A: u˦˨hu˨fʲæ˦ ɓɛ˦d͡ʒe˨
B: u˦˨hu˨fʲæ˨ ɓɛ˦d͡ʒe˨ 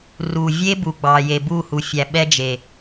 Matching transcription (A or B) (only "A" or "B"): B